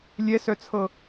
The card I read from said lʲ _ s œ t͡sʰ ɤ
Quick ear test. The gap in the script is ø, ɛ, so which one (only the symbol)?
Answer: ɛ